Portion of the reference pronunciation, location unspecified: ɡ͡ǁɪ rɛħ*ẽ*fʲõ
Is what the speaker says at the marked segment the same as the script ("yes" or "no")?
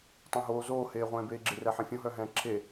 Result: yes